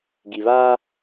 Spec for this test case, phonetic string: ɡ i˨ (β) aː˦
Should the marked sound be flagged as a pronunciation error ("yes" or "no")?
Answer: no